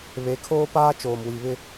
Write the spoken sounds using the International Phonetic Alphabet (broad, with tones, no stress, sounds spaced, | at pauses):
β e˨˦ kʰ oː˦ p aː˦ t͡ʃ oː˨ m w i˨ β ɪ˦